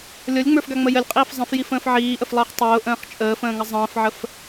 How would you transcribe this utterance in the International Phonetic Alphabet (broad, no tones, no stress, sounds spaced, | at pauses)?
lʲ ɔ lʲ ŋ͡m ə˞ f ɡ a ŋ͡m ə j ə lʲ qʼ iː f zˤ ə̃ f j i f ə̃ː f ʕ iː ʔ ə f lˠ əː χ tˤ ʊː ʔ ə̃ː χ t͡ʃʼ əː f ə̃ː ŋ ə zˤ ə̃ː f ʕ ə f